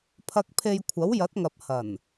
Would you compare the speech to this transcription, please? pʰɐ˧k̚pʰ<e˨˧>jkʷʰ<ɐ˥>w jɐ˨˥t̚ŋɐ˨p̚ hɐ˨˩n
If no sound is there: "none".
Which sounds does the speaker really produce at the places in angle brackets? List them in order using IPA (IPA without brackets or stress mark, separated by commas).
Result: e˧, ɐ˨˥